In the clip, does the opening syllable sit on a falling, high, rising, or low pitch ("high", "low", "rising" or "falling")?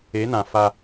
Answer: rising